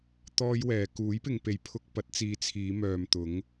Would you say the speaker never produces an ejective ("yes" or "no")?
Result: yes